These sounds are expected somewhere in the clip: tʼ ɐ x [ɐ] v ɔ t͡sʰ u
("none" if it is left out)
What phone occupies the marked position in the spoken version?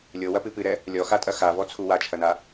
a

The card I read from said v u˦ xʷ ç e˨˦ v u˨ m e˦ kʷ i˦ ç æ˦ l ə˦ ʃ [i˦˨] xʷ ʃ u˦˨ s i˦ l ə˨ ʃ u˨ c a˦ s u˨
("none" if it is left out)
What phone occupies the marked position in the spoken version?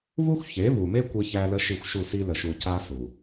i˦˨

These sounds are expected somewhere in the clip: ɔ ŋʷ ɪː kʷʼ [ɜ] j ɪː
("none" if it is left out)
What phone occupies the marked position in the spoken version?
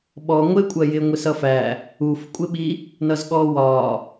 ɜ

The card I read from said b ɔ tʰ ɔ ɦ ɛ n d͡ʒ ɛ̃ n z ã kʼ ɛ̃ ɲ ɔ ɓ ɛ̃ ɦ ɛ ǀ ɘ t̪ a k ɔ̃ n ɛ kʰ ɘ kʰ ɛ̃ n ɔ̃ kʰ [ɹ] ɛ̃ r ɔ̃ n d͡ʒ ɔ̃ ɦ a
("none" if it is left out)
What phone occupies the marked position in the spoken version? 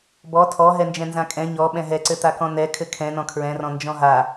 ɹ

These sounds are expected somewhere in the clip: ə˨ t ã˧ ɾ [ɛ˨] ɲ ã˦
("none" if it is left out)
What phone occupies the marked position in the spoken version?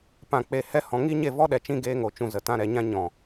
ɛ˨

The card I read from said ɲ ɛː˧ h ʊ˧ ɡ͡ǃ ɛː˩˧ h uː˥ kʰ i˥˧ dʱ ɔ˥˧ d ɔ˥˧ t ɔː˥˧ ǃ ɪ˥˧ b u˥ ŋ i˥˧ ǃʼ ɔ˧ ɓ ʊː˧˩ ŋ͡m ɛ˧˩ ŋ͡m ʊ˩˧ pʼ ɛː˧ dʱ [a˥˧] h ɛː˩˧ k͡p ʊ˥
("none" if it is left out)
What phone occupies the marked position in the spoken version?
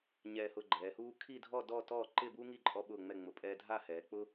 a˥˧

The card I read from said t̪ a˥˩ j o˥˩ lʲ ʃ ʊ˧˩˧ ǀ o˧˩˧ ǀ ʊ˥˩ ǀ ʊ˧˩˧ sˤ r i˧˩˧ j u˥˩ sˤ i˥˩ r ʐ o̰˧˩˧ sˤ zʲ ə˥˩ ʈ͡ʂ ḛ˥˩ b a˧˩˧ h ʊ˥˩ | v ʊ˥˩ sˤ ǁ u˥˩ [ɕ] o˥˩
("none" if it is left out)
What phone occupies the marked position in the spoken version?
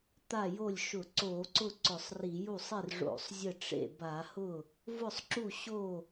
ɕ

